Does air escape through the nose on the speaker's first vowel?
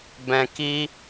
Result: yes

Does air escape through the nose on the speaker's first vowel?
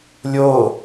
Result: no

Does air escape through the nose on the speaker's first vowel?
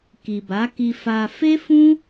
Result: no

